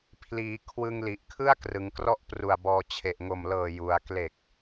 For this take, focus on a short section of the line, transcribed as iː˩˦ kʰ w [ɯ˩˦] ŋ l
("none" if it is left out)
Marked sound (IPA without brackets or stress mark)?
ɯ˧